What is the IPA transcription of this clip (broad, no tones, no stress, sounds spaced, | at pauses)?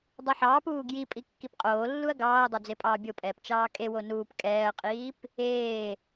dˤ o ħ ɑː p uː ɡ j i pʼ i kː i p qʼ oː lː u ɐ̯ ɡ ɑː ɐ̯ dˤ o d͡z e pʼ ɑː bʲ o pʼ ɛː p t͡ʃ ɑː kʼ e w o n uː p kʼ ɛː ɐ̯ qʼ iː p | eː